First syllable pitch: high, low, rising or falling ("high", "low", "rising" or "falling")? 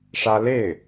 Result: high